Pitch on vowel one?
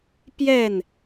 falling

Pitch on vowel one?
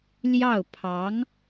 falling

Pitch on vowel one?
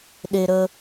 high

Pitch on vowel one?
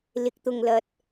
low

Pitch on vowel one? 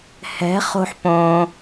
rising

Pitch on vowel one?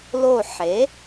falling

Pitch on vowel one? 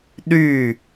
falling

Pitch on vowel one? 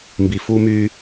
high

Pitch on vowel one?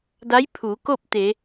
rising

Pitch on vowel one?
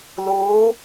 rising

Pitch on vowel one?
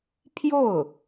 falling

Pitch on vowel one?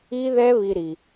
high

